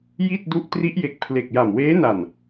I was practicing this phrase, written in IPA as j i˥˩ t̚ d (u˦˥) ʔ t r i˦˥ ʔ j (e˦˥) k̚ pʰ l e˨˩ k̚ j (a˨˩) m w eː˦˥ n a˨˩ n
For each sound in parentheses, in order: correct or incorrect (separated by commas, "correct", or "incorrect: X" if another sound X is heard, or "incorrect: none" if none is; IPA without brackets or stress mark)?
correct, incorrect: e˨˩, correct